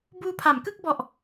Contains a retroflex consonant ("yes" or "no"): no